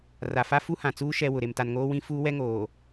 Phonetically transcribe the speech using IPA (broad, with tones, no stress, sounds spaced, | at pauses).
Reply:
r a˨ f a˦ f u˦ h ã˨ t͡s uː˦ ʃ ɛ˦ w ʊ˨ ɾ e˨ m t a˨ n ŋ oː˦ w ĩ˦ f uː˦ w ɛ˦ ŋ oː˨